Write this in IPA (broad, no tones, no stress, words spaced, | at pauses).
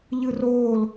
ʎɯroːl